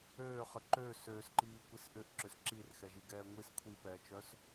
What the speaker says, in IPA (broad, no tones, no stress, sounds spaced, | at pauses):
øː χ ə ǃ øː s øː s ǃ iː kʷ i s ʔ ʏ ʔ ǁ ʏ s ǁ i r x ɛ ʒ i ɡ ɛː ŋʷ i s kʷʰ i p ɛː t͡ʃ œ s